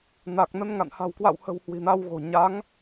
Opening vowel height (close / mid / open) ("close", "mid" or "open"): open